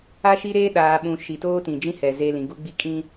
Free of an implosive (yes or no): no